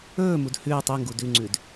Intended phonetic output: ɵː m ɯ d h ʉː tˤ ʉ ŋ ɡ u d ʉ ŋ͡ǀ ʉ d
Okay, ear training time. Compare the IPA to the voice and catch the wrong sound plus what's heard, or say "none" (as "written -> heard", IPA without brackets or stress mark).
ɯ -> u